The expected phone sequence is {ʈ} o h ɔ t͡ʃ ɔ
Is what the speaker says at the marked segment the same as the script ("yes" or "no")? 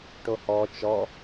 yes